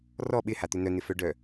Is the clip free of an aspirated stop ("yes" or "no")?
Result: yes